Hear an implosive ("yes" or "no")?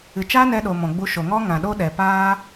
yes